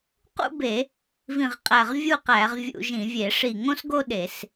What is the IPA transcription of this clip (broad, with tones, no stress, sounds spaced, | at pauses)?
q ṵ˥˧ b e˧˩˧ | v ĩ˧˩ ʁ qʼ æ˧˩ ʁ vʲ u˥˧ q æ˧˩˧ ʁ vʲ ṵ˧˩˧ ʒ ĩ˧˩˧ vʲ e˧˩˧ ʂ i˧˩ ŋ õ˥˧ s ɡ o˥˧ ɗ e˧˩˧ s